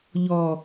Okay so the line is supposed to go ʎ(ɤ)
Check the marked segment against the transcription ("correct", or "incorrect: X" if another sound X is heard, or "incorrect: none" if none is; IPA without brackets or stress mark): incorrect: ɔ